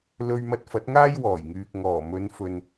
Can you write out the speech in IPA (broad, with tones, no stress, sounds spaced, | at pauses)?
l ɵ˧ ɥ m ɐ˧ t̚ f ɐ˨˥ t̚ ŋ aː˥ j w ɔː˨˩ j ŋ yː˨ k̚ ŋ ɔː˨˩ m ɵ˨˧ n f ɵ˨ n